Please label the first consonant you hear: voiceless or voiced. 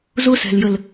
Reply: voiced